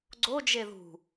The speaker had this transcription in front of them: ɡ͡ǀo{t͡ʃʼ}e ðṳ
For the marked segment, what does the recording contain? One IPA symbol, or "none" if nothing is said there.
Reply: d͡ʒ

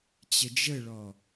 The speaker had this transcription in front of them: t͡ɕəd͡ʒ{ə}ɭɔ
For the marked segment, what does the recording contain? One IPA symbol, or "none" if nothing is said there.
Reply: ə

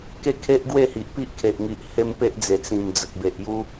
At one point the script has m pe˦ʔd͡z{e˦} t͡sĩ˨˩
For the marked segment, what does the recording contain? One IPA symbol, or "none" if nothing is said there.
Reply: e˨˩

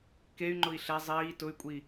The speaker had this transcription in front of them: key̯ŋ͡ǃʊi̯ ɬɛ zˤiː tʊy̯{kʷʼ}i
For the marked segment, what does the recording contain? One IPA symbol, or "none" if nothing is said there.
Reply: kʷʼ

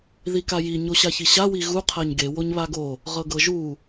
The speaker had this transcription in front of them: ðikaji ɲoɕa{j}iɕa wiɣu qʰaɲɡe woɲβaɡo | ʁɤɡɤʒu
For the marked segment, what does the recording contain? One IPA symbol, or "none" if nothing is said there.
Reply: ç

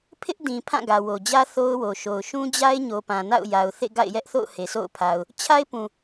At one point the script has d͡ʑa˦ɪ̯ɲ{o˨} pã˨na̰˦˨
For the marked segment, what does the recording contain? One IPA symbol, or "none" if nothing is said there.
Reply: o˨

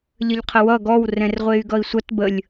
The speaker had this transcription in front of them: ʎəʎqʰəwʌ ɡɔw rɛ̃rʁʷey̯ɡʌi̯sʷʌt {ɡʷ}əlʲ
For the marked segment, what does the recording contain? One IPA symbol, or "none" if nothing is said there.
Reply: b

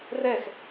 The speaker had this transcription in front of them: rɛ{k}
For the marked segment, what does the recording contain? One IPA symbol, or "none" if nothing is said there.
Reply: x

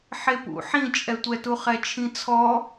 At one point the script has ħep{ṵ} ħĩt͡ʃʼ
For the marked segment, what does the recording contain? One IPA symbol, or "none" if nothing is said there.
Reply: ṵ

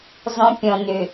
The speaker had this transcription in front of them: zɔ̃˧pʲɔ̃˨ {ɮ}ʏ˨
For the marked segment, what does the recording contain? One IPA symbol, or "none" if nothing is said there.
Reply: n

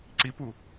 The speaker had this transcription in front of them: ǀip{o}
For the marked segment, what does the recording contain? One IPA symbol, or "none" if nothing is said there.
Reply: u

